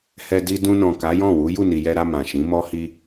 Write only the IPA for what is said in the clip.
hɛ˧ di˧dũ˧nɔ̃˨ ka˨˦jɔ̃˦˨wu˨˦ ju˦˨ni˨jɛ˧ɾa˧ mã˨ʃĩ˨˦mɔ˦ hi˦

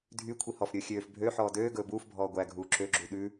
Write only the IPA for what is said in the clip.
dʱy kʷʰihɔfɾʲɵː xʲøːf bʱø ħɔːdøːɡɵː buːfbʱɔː ɡʷæɡʱuː ǁøɡ͡ǁu ɗʉ

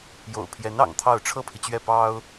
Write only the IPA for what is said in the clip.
jo̰˨˩ʊ̯pʰjɛ˧˥n ɑ̰˨˩ŋt̪ʰɑ˥˩ʊ̯ ʈ͡ʂʰɤ˥pʰi˨t͡ɕɥɛ˥˩ pɑ˥ʊ̯

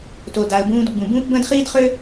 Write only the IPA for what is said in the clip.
to˩da˩ə̯bũː˧d ɡ͡bũ˩bũː˥pbə̃ː˥d χiː˥dχø˥

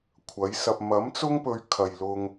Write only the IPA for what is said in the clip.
kʷʰɐ˨˥jsɐ˧p̚ mɐ˨˥mt͡sʊ˥ŋpɵ˨˧ɥ kʰɐ˨jlʊ˧ŋ

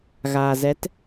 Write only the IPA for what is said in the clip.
ɣaː˩zɛ˩˧t

